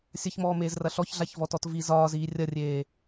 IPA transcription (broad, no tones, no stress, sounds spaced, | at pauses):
sʲ ɐ ç m ɔː m eː z r ɐ ɬ ɔ ç ɮ a ç v ɔ t ɔ t v i z ɒː z iː rʲ ɐ rʲ eː